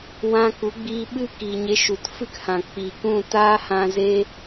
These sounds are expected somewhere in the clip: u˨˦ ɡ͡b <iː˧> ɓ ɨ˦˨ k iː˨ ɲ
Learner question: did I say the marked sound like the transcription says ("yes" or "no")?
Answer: yes